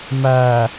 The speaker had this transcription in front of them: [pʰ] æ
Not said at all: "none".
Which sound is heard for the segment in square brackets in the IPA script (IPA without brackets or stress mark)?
m